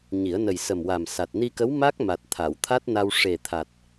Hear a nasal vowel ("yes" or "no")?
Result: no